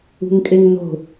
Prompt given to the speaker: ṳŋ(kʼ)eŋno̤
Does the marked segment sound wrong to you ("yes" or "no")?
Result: no